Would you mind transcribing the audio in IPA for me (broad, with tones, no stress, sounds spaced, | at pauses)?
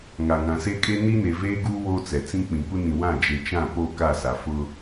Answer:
ŋ a˨ ŋ ã˨ s e˦ kʼ e˦ n i˦ n e˨ v eː˦ ɡ uː˦ w oː˦ t͡s ɛ˨ t͡s ĩ˦ k͡p ĩ˨ kʷ ɪ˦ n ĩ˨ w ã˦˨ d͡ʒ e˨ t͡ʃ ã˦˨ p o˦˨ k a˦˨ s a˨ f ʊ˦